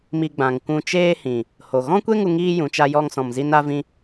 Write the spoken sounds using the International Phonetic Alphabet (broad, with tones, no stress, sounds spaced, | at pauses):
m i˧ ɡ͡b ã˨ ŋ kʷ ũ˧ t͡ʃ eː˦ h ĩ˨ | h o˨ ɣ ɔ̃˦ kʷ e˦ ŋ u˧ ŋ iː˦ j ũ˨ t͡ʃ a˦ j ɔ˦ ŋ s ɔ̃˧ m z i˦ n a˦ v ĩ˦